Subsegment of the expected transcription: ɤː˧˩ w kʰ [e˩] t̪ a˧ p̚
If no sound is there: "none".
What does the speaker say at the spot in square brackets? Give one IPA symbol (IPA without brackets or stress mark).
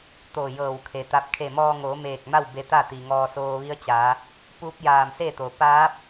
e˩